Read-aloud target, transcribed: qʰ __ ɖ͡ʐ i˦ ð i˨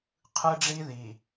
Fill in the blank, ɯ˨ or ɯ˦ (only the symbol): ɯ˦